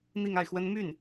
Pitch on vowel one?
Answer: falling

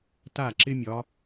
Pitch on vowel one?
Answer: falling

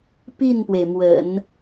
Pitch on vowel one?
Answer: falling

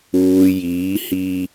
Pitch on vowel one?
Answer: low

